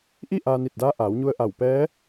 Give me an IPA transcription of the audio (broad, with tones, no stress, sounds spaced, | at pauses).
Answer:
ʔ i˥˨ ʔ aː˧ n i˧˩ t̚ d aː˧˥ ʔ aː˩˧ w ɲ u˧ ə̯ ʔ a˧˩ w p ɛː˧˥